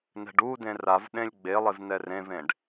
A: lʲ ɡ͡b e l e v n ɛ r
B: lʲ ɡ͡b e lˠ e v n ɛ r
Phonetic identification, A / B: B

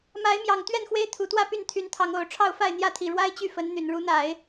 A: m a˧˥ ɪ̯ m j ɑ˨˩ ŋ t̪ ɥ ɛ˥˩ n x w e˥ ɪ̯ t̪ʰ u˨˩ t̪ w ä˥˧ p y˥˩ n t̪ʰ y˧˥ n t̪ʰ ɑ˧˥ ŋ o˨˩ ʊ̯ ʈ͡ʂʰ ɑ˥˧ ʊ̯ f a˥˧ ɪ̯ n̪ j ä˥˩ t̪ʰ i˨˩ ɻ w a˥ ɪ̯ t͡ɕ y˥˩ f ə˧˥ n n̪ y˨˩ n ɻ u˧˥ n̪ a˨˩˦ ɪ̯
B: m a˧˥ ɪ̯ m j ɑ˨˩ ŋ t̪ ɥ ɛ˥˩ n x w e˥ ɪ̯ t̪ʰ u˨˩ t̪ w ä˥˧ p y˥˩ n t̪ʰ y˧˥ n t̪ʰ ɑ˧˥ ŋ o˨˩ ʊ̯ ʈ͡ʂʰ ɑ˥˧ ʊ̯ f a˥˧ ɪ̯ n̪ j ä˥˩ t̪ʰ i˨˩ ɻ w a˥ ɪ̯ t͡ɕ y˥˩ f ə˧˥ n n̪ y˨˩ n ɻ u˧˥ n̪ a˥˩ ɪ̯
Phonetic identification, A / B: A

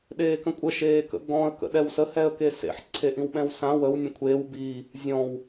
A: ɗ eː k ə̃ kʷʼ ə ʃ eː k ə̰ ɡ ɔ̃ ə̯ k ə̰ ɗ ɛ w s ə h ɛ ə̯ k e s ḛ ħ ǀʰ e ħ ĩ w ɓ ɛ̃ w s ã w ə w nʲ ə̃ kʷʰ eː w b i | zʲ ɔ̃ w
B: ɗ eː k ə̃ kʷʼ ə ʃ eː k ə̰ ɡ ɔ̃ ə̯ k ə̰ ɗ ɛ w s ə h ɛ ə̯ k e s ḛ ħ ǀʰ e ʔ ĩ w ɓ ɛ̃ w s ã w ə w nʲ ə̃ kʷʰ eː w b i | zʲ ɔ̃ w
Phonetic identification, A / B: B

